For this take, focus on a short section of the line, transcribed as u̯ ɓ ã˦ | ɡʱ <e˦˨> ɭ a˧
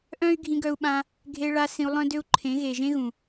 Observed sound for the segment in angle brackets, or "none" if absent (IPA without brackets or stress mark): e˧